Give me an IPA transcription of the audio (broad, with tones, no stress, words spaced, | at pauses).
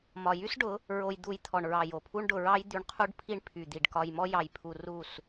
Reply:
mɒ˨jy˦sɖʊ˨˦ | ɹo˧jd̪u˧j t̪ʰɔ˨ɳɹɑ˨ jo˨pʰu˦ɳɖʊ˧ ɹɑ˦jd̪y˧ɳ qʰu˦ɖpʰi˦ɳ pʰy˨d̪i˨ɖ kɒ˧jmɔ˦ jɑ˧j pʰu˧ ru˦˨s